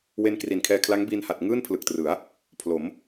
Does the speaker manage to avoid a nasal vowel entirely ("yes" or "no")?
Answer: yes